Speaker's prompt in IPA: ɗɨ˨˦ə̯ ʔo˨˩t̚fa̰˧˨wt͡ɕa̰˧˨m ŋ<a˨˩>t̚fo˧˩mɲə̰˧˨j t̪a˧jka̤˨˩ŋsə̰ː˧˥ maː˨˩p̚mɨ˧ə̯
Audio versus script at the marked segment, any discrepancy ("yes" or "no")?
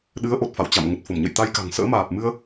yes